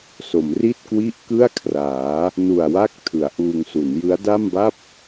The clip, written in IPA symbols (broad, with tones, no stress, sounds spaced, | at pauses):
s o˩˦ m r i˥˩ t̚ k w i˥˩ ʔ k ɯ˥˩ a̯ kʰ r aː˩˦ | n u˨˩ a̯ w a˦˥ k̚ tʰ ɯ˩˦ a̯ ʔ uː˧ ŋ s u˩˦ n j ɯ˦˥ a̯ d a˥˩ m b a˥˩ p̚